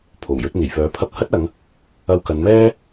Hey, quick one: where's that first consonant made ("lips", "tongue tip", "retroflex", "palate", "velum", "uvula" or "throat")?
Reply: lips